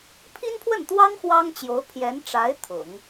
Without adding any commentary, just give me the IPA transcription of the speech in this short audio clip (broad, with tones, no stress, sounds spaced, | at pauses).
pʰ i˥ n pʰ w ə˥˩ n t̪ w ɑ˥ ŋ x w ɑ˥ ŋ t͡ɕ j o˧˥ ʊ̯ pʰ j ɛ˧˥ n ʈ͡ʂ a˧˥ ɪ̯ t̪ʰ ʊ̰˨˩˦ ŋ